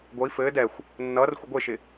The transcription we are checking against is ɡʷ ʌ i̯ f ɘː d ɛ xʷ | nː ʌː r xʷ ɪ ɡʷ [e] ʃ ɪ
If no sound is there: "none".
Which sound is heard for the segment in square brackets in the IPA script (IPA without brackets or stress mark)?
e